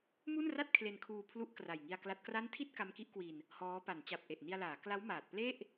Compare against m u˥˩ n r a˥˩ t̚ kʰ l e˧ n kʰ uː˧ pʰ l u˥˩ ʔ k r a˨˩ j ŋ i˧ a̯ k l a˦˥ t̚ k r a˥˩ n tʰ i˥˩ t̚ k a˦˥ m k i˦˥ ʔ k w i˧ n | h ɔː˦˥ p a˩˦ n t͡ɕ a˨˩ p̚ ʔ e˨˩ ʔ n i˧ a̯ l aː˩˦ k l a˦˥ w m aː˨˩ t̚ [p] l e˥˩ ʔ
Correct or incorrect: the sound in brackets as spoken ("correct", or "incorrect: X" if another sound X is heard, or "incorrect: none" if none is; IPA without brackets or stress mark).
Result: correct